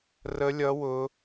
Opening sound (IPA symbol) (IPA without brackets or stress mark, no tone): r